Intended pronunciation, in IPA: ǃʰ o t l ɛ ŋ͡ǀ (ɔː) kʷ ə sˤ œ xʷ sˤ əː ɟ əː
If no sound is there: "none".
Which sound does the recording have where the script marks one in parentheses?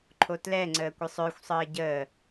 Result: əː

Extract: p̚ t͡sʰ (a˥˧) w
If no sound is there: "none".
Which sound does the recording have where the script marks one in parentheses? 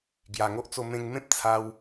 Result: a˧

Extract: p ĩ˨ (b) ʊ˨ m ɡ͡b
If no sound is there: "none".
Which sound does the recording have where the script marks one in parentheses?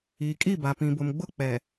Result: b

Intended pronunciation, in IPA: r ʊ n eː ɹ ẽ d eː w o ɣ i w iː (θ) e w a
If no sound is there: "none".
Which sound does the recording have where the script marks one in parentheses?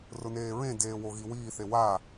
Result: θ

